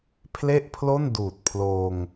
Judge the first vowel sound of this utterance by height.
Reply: mid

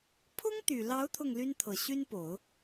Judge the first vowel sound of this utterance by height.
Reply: high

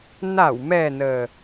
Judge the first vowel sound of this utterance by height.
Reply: low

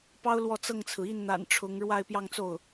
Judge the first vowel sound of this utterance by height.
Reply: low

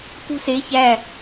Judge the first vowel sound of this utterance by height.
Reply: high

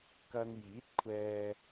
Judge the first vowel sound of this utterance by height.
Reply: low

